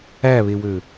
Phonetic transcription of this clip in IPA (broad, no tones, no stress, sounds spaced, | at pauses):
æ β e w ø